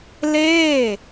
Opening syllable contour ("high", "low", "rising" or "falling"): falling